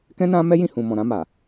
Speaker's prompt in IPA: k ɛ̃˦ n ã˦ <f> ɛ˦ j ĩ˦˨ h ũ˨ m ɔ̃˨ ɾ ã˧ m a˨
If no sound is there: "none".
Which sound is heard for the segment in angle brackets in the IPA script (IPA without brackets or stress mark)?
m